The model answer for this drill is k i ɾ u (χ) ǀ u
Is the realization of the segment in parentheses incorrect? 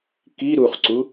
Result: no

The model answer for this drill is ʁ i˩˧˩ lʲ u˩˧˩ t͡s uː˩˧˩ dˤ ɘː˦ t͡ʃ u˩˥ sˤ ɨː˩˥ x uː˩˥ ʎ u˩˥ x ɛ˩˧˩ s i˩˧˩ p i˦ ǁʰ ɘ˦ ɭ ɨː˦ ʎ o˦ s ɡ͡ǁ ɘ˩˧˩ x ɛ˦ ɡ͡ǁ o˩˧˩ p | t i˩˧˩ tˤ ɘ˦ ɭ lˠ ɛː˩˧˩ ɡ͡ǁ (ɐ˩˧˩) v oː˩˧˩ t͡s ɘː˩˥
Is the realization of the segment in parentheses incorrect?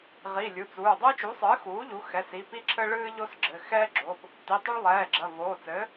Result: no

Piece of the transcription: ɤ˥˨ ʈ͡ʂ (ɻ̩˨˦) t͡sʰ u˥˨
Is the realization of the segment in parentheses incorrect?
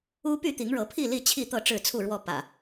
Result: yes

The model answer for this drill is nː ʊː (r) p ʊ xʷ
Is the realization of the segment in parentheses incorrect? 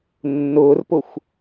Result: no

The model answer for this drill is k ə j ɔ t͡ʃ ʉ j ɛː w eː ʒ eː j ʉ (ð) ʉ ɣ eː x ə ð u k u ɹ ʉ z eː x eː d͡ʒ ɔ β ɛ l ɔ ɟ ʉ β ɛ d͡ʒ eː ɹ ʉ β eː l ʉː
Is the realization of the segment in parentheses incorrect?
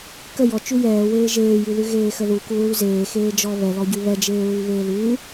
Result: no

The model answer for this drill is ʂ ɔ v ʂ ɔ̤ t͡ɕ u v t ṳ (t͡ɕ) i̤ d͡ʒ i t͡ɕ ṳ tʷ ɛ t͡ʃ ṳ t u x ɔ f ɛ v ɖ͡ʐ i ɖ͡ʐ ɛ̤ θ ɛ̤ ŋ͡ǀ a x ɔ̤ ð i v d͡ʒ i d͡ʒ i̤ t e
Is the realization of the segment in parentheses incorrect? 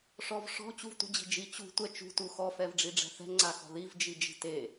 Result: yes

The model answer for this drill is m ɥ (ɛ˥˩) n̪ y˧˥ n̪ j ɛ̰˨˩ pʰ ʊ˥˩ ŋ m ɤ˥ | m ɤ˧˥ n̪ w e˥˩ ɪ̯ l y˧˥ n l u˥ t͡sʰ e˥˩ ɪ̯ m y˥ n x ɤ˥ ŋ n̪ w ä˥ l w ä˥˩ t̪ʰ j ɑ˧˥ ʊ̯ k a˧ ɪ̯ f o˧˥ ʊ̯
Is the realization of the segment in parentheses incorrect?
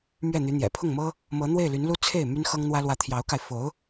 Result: no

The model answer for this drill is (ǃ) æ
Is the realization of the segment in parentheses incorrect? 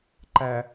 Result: no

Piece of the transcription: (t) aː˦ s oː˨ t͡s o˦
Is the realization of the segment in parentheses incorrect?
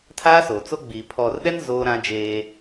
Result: yes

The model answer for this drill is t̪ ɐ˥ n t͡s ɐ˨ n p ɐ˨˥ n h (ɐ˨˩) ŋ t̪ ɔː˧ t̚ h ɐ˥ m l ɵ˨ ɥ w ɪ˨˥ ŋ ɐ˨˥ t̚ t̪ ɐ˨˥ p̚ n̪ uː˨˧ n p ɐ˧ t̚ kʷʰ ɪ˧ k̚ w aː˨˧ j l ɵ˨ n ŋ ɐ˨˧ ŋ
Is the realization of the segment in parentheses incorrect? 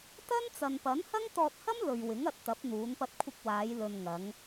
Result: yes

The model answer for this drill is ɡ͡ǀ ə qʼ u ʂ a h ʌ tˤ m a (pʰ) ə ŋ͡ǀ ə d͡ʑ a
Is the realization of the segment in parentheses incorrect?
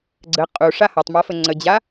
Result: yes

